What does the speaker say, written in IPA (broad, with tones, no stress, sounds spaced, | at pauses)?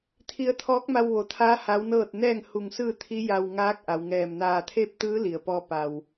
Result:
t̪ʰ i˧ ə̯ t̪ʰ ɔː˧˥ k̚ m a˧ w ʋ o˩˧ t̪ʰ aː˧˥ h a˧˥ w n ɤː˥˨ t̚ n ɛː˥˨ ŋ h u˧˩ ŋ s ɯː˥˨ t̪ʰ i˧˥ j a˧ w ŋ aː˧˥ k̚ ʔ a˩˧ w ŋ ɛː˧˩ m n aː˧˩ t̪ʰ eː˥˨ p̚ t̪ ɯː˧˥ l i˩ ə̯ p ɔː˧ p a˩ w